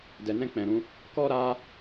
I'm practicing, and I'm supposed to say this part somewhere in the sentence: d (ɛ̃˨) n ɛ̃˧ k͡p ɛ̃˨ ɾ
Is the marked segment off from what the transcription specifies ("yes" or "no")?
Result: yes